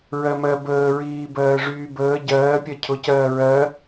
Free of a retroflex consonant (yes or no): no